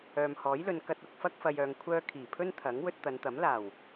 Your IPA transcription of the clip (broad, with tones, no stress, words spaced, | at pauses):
œː˨mhɔː˨˥jlɵ˨˧n kɐ˧t̚ʊ˧k̚fɐ˥k̚ fɐ˨jœː˨ŋkʷʰœː˧ kʰiː˨˩pʰɵ˥n t̪ʰɐ˨˥ŋ wɵ˧t̚t̪ɐ˨˧nt̪ɐ˨˥m laː˨˩w